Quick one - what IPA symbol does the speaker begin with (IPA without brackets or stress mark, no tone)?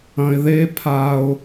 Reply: ɐ̃